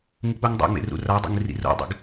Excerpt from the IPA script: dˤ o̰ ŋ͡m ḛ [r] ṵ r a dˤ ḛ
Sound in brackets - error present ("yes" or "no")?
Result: no